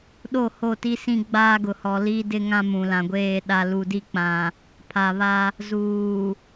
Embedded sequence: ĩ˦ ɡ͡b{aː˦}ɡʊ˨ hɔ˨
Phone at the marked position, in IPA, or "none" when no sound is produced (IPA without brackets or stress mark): aː˦